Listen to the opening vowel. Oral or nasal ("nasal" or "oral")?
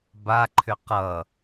oral